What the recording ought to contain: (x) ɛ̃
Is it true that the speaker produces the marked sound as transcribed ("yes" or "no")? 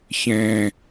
no